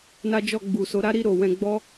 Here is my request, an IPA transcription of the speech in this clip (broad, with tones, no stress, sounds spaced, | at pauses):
n a˦ d͡ʒ ɔ˦˨ ɡ͡b u˨ s o˨˦ ɾ a˦ ɾ i˦˨ ɾ o˨ w ɛ̃˧ ɡ͡b ɔ˦